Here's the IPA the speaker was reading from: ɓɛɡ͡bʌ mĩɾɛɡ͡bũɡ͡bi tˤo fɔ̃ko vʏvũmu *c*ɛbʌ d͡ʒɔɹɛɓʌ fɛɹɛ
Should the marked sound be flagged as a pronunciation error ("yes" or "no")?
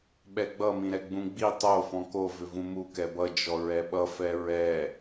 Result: yes